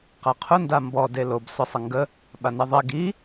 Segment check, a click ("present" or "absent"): absent